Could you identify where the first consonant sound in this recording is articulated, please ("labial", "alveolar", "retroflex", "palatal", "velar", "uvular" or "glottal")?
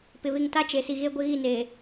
labial